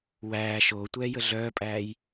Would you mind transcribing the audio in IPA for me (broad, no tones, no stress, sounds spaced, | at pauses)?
w æː ʃ oː tʷ ɛː j ə ɮ œː pʼ æː j